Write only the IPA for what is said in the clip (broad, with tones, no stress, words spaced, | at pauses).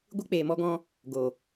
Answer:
ɡʷɨ˧k͡peː˨mɔ˧ɡɔ̃˧ | ɡo˨